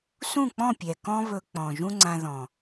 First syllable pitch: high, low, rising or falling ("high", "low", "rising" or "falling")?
falling